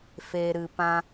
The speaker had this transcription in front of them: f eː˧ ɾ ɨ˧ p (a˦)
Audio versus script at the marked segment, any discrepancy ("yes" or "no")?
yes